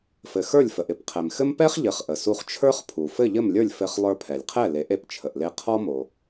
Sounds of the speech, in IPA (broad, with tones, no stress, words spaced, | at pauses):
fɘ˩xə˞˥˩lʲfə˩ʔ ɪ˥˩pqʰɛ˩mxɘ˥m pɛ˥χʎɘ˩˥χʔə˩ su˧χt͡ʃʰə˞˥χpʰu˩ fɘ˥˩ʎɘ˥˩mlʲə˞˥˩lʲ fɘ˧χ lˠə˞˧pʰɛ˩lʲqʰɛ˥˩ le˩˥ʔe˧pt͡ʃʰə˩ʔle˧ qʰɔ˥mo˩